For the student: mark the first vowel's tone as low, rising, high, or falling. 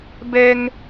high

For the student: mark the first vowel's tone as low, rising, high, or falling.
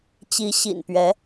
rising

